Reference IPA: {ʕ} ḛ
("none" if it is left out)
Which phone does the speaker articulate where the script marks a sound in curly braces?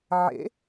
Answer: ʕ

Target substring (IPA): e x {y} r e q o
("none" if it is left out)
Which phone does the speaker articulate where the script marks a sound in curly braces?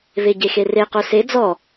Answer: e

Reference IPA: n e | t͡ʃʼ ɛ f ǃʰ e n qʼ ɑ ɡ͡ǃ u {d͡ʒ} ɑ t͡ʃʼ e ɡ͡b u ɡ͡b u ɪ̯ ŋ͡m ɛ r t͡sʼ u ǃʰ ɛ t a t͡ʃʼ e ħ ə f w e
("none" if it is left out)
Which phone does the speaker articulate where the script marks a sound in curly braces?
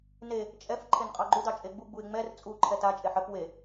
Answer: d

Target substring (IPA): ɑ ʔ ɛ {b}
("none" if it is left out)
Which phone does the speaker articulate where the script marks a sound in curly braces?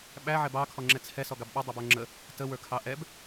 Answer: b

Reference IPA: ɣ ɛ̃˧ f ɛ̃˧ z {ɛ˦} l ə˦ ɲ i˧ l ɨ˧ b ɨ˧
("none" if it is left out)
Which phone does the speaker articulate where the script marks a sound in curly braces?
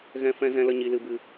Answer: ɛ̃˦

